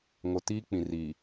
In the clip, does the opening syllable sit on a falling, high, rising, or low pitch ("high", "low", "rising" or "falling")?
low